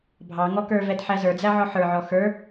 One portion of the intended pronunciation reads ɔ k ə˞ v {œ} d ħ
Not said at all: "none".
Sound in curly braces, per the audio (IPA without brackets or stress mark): ɛ